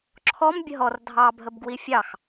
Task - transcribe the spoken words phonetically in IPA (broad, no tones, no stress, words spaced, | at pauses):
ǁʰɔm bʲəɦɔr dʱɑ bʱəbɡwifʲɑx